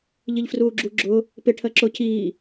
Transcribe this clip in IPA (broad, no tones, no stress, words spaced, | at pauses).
ʎiʎfruːɡ͡ǁu ɡ͡ǁʊ | pɪ ʈʰɜǁʊ cʰiː